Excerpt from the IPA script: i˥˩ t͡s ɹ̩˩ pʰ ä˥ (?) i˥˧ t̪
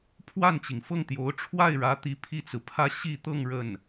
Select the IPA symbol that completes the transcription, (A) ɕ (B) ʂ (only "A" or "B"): A